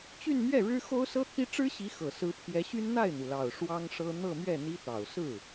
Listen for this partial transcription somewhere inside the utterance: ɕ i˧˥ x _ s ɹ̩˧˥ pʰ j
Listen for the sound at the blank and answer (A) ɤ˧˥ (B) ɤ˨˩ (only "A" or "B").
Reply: B